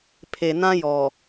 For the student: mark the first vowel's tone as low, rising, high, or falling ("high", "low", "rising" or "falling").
low